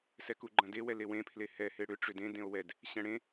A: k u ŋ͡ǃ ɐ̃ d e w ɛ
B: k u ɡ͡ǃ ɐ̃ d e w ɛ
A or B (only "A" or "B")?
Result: B